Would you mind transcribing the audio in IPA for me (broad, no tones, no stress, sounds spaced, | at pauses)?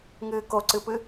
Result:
ŋ ɨː k o ǀ ɨ p ɨ